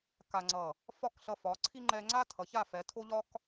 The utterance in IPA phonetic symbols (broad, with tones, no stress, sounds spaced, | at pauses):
k a˧ ŋ͡ǀ ʌ˧˩ | f ɒ˥˧ k ɬ ʌ˧ f ɒ˩˧ ǀʰ i˥ ŋ͡ǃ ɛ˧ ŋ͡ǀ a˥ tʰ ʌ˩˧ ç a˥˧ f ɛ˩˧ tʰ o˥ ʎ ɒ˥ k